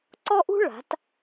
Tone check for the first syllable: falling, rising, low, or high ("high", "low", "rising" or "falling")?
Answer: high